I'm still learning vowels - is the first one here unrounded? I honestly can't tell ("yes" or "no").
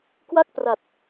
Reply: yes